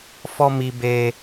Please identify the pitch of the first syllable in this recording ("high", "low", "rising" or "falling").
high